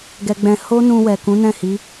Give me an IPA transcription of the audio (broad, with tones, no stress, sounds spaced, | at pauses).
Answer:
ɡ ɛ˧ ɡ͡b ɛ̃˧ h o˦ n ũ˧ w ɛ˨ k ũ˨˦ n ɛ̃˦˨ h i˨˦